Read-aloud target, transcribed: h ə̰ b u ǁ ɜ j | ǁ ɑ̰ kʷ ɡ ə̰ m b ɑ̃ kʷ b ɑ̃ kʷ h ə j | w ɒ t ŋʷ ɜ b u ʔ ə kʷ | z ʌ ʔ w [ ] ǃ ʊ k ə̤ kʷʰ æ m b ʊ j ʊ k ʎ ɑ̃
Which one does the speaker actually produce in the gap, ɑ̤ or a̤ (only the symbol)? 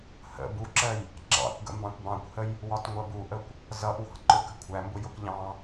ɑ̤